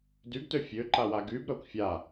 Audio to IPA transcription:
d y ɡ t ø fʲ ø ǃ a w a ɡ y b ɾ œ kʷ fʲ a

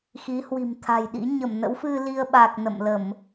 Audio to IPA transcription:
x i˨˦ h w i̤˨˩ m t̪ʰ a̤˨˩ j ɗ ḭ˧˥ ɲ ə˧˩ m n ə̰˧˥ w f ɨ˧ l i˧ ə̯ ɓ a˨˩ k̚ n ə̰˧˨ m l ə˧˩˨ m

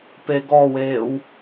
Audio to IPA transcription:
p e ɡ ɔ w eː w

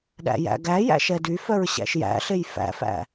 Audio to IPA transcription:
ɗ æ̰ j æ̰ ɡ æ j æ̰ ʃ ɛ d y f œ ɹ ɕ æ̰ ʃ j æ̰ ɬ e j f æ̰ f æ̰

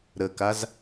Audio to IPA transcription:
ɾ ə k a z

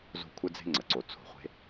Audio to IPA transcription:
z o̤˦ kʷʰ ɘ˦ d͡z e̤˦ ŋ͡ǀ ə˨ ǀ o˧ t͡sʰ o̤˧ χʷ e̤˦

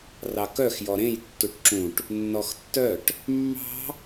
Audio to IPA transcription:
r ɑ k œ x j ɔ ɾ ẽ j tː u ʈ ǁ ũ ʈ | nː ɔ x tː œ ʈ | mː ɑ̤

